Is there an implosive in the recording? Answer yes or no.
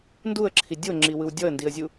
no